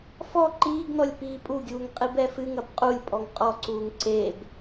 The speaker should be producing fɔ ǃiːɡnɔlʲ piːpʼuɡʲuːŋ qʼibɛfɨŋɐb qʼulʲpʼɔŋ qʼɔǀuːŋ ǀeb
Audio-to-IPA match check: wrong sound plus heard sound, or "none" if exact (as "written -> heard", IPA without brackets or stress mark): none